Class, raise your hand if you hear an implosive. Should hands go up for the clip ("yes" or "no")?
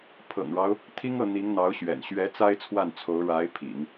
no